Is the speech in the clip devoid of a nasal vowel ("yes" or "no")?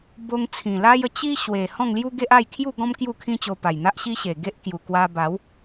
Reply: no